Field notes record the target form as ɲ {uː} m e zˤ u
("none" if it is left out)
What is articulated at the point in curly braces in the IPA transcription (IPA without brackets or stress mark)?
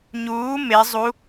uː